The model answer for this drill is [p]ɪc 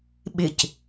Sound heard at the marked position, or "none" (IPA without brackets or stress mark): ɓ